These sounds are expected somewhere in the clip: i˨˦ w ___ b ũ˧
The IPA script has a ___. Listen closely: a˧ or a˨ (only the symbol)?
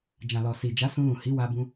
a˧